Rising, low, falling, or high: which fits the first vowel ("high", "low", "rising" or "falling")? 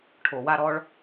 low